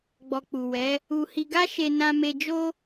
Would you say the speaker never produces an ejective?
yes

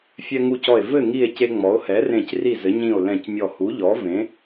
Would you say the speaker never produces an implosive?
yes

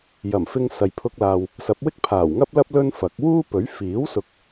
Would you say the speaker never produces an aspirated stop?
no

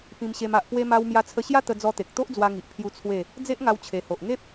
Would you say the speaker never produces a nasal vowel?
no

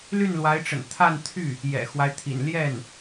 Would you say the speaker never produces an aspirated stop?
no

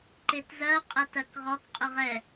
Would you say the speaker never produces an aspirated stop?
yes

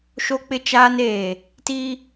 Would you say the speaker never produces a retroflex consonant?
yes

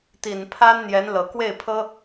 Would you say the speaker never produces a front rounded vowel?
yes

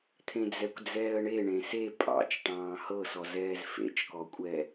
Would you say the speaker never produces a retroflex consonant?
no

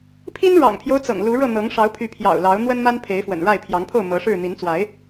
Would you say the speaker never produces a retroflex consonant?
no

